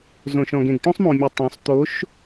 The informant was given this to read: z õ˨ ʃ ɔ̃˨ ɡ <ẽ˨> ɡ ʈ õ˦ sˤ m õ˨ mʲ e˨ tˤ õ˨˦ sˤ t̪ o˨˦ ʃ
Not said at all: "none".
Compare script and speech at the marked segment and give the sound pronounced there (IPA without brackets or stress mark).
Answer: ẽ˨